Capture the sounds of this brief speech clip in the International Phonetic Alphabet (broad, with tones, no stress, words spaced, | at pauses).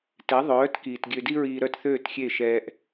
tɛ˩˥ðˤœː˩˥tkiː˩t ɡʲø˧di˥ɹiː˧ɾœ˥˩t θøː˥˩txʲe˥˩ ʃɛ˧ʔ